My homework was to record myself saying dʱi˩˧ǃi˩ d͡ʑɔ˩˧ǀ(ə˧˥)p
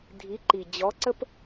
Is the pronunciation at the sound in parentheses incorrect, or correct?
incorrect